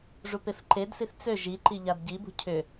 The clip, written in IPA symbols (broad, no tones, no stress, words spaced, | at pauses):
ʐupefǃedsiθ t͡sø ʒiǃi ʎadɟibṳ cʰʏ